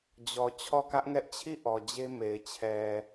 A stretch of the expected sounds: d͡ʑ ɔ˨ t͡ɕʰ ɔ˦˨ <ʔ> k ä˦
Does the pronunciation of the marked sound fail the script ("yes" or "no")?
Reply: yes